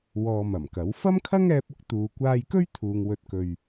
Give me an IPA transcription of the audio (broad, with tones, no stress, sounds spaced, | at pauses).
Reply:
w ɔː˧ m ɐ˨˩ m k ɐ˨˥ w f ɐ˥ m kʰ ɐ˥ ŋ ɛː˧ p̚ ʊ˥ k̚ t̪ uː˨ kʷ aː˧ j k ɵ˥ ɥ t̪ʰ uː˨ ŋ w ɵ˨˥ t̚ k ɵ˨ ɥ